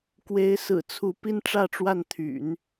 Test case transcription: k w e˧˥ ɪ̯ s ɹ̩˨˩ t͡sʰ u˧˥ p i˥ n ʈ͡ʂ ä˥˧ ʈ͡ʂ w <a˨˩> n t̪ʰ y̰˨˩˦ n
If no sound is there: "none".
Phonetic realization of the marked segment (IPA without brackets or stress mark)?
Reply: a˥˩